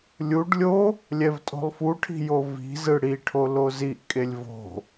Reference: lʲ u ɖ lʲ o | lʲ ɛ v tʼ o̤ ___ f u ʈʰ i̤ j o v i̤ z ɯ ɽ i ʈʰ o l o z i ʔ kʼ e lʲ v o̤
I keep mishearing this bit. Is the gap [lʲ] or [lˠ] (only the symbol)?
lˠ